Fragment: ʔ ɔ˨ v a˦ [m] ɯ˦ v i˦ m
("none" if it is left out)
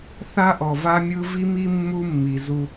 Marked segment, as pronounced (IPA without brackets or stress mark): mʲ